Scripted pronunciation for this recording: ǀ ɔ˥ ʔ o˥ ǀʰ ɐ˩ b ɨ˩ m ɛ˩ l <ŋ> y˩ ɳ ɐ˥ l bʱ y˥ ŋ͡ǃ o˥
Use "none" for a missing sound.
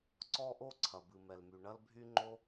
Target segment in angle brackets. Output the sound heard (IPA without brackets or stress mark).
m